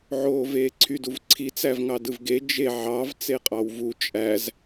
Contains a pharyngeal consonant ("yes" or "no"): yes